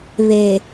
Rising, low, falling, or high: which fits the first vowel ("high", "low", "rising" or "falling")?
low